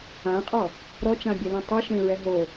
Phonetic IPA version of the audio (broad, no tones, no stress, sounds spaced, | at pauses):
ã qʼ ɔ | ɾ ɔ t͡ʃ ã bʲ ɛ l ɛ̃ tˤ ɯ ʃ ẽ ɹ ɛ ɦ o